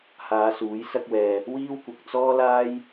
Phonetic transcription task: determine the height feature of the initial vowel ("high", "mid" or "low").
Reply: low